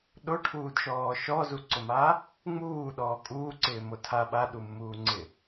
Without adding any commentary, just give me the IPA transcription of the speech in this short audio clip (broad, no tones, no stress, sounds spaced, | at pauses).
ɗ o ʈʰ uː d ʃ ɔː ʃ ɔ z u ǀ ʊ m a | ŋ͡m uː ɗ ɔː kʼ uː ǀ ɪː m o tʰ a ɓ a ɗ u mː uː ŋ͡ǀ ɪ